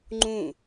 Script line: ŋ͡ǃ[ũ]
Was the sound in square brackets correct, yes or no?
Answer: yes